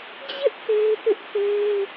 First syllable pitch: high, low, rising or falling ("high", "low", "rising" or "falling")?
high